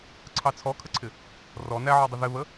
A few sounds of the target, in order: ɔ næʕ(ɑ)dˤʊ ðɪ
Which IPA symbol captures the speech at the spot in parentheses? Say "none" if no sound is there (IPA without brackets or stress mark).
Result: ɔ